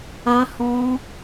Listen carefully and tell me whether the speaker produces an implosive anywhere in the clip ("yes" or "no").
no